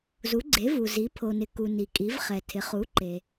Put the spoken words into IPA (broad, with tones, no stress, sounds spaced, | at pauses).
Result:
z u˩˧ ɡ͡ǀ e˩˧ v u˩ z i˩˧ pʰ o˩ n ɪ˩ k u˩ n i˩ kʼ i˩˧ v χ ɛ˩ tʰ ɪ˩˧ χ u˩˧ ǃ e˩